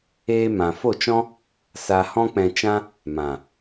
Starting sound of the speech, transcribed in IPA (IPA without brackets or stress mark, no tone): eː